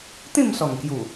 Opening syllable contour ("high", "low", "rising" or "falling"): falling